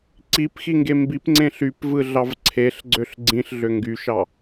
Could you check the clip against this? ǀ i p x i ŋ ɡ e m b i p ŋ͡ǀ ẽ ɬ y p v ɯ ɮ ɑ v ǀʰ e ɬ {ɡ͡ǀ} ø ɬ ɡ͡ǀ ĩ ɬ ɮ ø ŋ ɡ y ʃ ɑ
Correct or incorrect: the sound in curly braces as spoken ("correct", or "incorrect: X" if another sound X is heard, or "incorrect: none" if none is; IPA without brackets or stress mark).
correct